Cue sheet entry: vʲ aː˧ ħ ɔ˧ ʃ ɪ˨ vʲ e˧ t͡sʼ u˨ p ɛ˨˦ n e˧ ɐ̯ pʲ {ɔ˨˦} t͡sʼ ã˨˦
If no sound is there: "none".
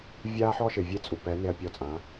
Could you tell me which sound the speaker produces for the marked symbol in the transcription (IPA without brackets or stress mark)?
ɔ˧